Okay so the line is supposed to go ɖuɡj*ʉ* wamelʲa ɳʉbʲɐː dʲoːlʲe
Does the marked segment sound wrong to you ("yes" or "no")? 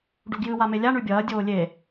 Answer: yes